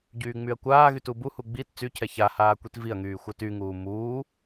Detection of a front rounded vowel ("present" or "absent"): present